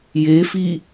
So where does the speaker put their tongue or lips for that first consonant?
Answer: palate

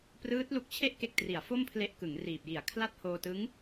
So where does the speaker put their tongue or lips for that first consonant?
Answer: lips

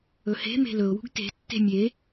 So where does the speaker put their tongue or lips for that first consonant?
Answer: throat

